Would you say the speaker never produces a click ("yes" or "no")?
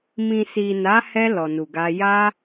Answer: yes